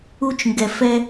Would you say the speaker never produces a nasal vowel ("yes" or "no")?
yes